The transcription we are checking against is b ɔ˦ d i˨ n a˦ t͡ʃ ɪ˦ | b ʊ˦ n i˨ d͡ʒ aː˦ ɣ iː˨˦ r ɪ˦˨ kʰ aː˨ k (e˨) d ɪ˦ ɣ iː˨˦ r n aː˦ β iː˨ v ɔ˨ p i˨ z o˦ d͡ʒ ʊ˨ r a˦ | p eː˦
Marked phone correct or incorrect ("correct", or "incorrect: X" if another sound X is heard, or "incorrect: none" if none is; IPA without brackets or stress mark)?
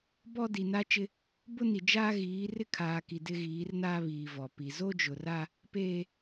incorrect: i˨